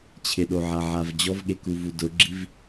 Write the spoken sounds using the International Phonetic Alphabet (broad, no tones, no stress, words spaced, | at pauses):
t͡ɕʰɪɗoʕaʕav d͡ʑɔvɠekuvu dʊɡ͡ǁiv